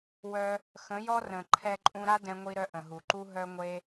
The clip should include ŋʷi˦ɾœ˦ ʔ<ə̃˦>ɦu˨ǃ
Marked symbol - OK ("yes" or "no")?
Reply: no